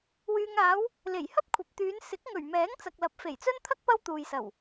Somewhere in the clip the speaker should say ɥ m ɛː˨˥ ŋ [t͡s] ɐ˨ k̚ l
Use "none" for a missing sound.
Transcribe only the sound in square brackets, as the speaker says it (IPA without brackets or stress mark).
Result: t͡s